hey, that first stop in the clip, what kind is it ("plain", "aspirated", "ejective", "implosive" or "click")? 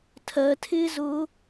aspirated